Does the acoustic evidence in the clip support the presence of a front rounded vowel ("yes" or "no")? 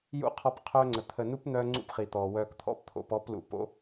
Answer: yes